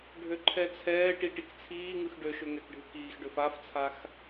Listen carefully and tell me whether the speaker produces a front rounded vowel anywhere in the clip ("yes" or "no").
yes